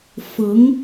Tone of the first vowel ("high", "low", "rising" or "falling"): rising